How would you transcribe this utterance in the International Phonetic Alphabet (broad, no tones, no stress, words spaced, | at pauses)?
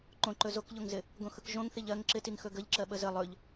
ǃõǃɵ zokʎoŋzɪ | ɡõxɯkʒõŋθiʎ ɜŋ ǁɪtiŋ xɵɡəʎǁɜ ɓəzə lˠɵʎ